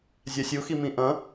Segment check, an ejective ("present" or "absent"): absent